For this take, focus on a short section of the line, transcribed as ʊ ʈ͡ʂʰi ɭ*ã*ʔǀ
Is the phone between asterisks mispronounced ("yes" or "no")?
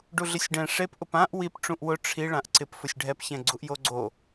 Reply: no